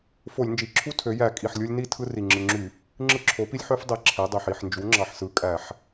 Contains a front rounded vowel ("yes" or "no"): yes